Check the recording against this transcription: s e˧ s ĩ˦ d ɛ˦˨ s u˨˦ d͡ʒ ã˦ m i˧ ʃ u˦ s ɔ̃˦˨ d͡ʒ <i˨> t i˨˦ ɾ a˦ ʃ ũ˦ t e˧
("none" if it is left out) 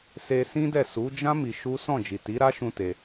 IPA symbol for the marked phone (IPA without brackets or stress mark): i˨